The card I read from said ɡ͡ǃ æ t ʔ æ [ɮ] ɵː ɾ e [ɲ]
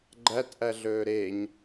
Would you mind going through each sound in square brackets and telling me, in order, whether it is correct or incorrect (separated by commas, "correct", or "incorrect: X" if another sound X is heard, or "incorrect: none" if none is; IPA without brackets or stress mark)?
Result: correct, correct